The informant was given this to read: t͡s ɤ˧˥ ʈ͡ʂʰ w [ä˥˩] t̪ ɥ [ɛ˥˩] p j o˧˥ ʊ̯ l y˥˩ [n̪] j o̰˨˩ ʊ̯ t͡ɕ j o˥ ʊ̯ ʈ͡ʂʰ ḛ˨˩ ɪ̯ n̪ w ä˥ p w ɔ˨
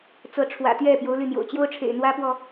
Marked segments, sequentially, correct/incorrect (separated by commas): incorrect, correct, correct